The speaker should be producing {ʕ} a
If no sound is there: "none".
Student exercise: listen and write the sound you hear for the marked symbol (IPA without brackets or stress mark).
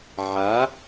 ʕ